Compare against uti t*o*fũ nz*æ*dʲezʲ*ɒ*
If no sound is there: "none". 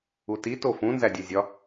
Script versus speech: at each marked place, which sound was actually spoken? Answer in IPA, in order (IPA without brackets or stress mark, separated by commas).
o, æ, ɒ